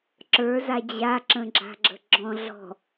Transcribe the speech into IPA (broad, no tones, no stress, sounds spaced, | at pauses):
ǁ ə˞ z a d͡ʑ a ǁ ə̃ ɡ͡ǁ a̤ ɡ͡ǁ ə̤ ɡ͡ǁ ɔ̃ ɮ ɔ̤